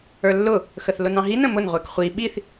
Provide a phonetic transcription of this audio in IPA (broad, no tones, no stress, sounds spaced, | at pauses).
ə˞ lː ʊ | x ə θ l ʊ n ɑ̃ ɦ i n ə̃ m ʊ n ʁʷ ɛ k χʷ i ɓ i θ